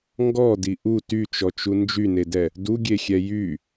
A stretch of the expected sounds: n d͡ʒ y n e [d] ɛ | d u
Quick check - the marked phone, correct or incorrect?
correct